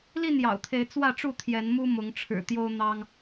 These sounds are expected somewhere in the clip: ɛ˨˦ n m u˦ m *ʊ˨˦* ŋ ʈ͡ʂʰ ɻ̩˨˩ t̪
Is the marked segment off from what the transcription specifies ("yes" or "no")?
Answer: no